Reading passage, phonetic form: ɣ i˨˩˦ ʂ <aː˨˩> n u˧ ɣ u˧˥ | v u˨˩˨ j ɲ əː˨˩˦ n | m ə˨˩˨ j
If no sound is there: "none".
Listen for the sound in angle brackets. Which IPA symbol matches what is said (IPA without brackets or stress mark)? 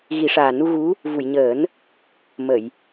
aː˨˩